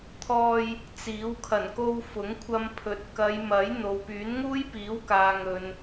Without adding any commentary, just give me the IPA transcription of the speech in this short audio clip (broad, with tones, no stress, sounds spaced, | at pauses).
t̪ʰ ɔː˧ j | t͡s iː˨˥ w kʰ ɐ˨˩ n k o˧ w f ʊ˨˥ ŋ kʷʰ ɐ˧ m pʰ ɵ˨˥ t̚ k ɐ˨˧ j m ɐ˨˥ j n̪ o˨ w p yː˨˥ n ŋ uː˥ j p iː˨˥ w k aː˨ ŋ ɵ˨ n